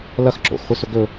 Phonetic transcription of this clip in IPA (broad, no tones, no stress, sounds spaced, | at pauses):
l ɐ x ǁ o̰ x χʷ ɨ s ɵ ɡ ɵ